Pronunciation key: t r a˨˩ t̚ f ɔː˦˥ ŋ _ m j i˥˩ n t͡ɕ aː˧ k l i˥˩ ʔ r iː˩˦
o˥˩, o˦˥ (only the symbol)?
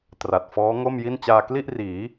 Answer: o˥˩